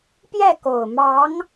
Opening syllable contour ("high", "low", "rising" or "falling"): falling